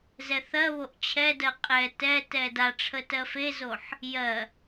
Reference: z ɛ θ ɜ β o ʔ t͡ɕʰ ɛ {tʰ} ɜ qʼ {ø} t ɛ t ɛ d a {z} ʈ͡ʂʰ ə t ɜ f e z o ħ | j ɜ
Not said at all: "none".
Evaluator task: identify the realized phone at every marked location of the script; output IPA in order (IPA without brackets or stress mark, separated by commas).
d, ɛ, none